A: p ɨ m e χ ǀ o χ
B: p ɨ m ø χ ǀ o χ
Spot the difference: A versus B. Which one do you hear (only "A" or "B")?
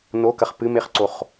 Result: A